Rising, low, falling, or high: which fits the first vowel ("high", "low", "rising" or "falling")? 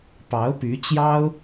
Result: rising